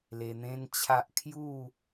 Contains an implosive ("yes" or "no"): no